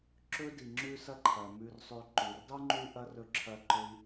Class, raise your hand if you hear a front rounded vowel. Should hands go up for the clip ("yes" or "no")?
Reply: yes